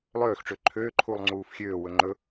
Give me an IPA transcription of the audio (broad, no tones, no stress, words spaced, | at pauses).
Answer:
lˠøːxʈ͡ʂø ǃʰøːǃʰuːlˠ ŋ͡ǀuːfxʲøːwɵ ŋ͡ǃɵ